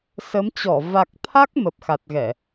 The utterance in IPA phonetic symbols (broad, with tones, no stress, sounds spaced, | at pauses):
s ə˨˦ m t͡ɕ ɔ˧˩ v a˨˩ k̚ t̪ʰ a˦˥ k̚ m ə˨˩ p̚ x a˨˩ t̚ ɣ ɛ˧˩˨